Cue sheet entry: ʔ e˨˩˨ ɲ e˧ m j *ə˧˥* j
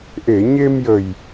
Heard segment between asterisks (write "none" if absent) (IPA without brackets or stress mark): ə˨˩